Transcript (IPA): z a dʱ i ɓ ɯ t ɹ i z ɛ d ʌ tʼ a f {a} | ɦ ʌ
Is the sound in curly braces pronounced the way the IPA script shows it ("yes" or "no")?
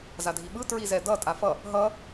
no